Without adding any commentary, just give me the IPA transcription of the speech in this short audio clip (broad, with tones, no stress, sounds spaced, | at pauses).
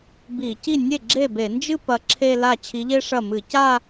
b i˧˩˧ c i˥˩ nʲ e˥˩ ɡ͡ǁ e˥˩ b e˧˩˧ n d͡ʒ ɨ˥˧ p ɐ˧˥ ǁʰ e˥˧ l a˥˩ t͡ɕʰ i˧˥ ʎ e˥ ʂ ɐ˥˩ m ɨ˧˩˧ c a˥˧